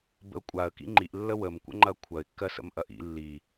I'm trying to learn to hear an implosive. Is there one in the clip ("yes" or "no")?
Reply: no